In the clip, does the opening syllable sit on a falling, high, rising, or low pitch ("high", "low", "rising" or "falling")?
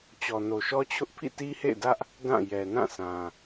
low